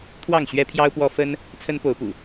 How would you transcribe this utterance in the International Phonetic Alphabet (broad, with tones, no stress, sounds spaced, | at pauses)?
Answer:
t̪ʰ w ɑ˥˨ ŋ ɕ ɥ ɛ˦ pʰ j ɑ˦ ʊ̯ p w ɔ˦ f ə˦ n | t͡sʰ ə˦ n p o˨˦ ʊ̯ p ṵ˨˩